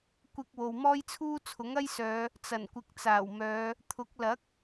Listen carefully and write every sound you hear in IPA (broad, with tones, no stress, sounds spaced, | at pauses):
kʷ ɪ˧ k̚ w o˨ w m ɔː˥ j t͡sʰ uː˥ t͡sʰ ʊ˨˥ ŋ ɐ˥ j s œː˨˧ | t͡s ɐ˨˩ n kʷ ɪ˨ k̚ t͡s aː˨˩ w m œː˨˧ | t̪ʰ ʊ˨˥ k̚ l ɐ˨˥ k̚